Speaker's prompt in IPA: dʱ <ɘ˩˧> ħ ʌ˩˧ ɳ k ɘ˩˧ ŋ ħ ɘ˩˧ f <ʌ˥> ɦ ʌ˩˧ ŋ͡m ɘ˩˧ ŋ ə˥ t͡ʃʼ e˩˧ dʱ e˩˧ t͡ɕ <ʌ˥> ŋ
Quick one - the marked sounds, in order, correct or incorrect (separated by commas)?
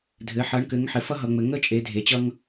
correct, correct, correct